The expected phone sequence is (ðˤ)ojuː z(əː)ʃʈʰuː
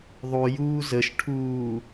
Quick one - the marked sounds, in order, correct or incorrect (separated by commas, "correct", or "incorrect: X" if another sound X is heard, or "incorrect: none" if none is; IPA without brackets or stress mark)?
correct, incorrect: ə